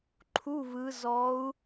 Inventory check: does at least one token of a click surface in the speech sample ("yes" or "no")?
yes